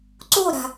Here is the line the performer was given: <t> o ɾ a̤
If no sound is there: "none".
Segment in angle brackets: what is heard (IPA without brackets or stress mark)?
ǀ